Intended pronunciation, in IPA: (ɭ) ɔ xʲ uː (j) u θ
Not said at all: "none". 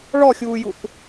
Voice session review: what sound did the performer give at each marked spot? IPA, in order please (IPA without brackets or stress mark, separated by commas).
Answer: ɭ, j